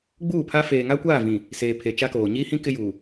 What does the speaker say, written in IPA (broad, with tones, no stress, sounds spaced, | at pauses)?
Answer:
ɡ͡b uː˦˨ pʰ a˦ f eː˨ ŋ a˦ kʷ aː˦˨ v ĩ˨ | s eː˨ pʰ e˨ t͡ʃ a˦ k oː˨ ɲ iː˦ h ĩ˦ k ɪ˦ j uː˨